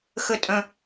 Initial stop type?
ejective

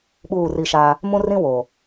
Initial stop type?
implosive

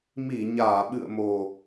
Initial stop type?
implosive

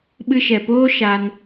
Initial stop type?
implosive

